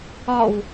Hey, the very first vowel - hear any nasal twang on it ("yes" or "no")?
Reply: no